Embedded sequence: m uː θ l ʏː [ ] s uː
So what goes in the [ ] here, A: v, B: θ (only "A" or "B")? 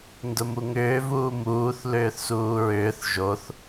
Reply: B